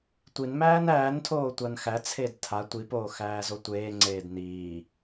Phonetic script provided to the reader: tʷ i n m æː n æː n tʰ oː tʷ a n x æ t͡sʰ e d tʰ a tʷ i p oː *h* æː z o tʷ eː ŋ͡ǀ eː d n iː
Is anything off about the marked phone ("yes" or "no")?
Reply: yes